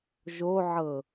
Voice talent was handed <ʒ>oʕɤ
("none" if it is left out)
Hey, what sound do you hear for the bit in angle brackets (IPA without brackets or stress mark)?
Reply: ʒ